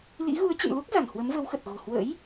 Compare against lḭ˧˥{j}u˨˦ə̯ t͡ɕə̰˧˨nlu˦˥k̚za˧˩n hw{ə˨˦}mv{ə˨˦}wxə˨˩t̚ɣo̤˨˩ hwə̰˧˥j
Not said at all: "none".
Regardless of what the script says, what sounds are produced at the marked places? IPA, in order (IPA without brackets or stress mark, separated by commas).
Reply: ɣ, ə˨˦, ə˨˦